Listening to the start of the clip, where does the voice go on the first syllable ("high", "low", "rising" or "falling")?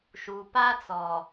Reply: low